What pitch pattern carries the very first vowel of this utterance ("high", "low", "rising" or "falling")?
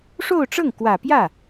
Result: falling